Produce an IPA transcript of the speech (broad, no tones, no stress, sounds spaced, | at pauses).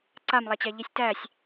ǀ a m lˠ a t͡ɕ æ ʎ i sʲ t æ sʲ